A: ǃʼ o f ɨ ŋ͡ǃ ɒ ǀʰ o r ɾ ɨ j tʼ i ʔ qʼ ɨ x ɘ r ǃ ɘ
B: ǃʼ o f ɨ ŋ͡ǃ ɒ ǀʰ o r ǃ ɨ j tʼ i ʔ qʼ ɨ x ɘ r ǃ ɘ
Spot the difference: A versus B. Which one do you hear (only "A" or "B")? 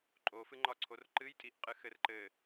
B